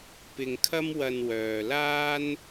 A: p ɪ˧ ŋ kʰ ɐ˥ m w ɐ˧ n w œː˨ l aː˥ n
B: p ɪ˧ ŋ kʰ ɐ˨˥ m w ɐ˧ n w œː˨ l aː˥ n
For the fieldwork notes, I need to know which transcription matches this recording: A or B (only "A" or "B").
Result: A